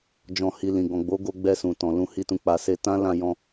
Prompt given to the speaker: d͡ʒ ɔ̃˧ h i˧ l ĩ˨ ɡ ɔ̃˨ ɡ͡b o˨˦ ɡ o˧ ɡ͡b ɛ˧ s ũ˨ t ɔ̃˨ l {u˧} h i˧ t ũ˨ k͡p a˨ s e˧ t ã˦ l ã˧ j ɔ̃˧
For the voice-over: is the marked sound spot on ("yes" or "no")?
no